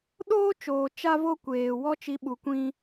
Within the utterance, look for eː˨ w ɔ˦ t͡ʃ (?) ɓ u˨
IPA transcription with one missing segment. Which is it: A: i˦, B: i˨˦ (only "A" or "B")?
B